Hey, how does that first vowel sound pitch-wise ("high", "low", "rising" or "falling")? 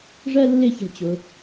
high